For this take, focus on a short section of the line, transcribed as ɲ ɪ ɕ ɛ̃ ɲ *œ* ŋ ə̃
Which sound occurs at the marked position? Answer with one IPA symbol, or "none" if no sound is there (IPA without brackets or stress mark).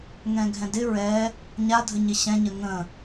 ə